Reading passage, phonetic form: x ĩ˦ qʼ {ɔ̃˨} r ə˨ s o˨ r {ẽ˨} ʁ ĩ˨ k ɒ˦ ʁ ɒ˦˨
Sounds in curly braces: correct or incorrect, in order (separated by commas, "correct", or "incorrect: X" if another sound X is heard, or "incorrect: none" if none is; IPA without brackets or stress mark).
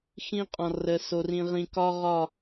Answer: correct, incorrect: ĩ˨